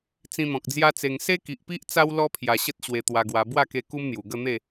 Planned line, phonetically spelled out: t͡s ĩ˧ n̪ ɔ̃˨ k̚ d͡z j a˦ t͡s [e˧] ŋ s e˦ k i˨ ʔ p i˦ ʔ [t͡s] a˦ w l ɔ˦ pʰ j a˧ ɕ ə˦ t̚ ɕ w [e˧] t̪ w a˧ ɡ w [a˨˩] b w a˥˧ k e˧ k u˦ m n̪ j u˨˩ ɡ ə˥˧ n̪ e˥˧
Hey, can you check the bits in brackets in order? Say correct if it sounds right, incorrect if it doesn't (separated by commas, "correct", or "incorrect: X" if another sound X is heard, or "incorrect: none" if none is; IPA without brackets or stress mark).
correct, correct, correct, incorrect: a˧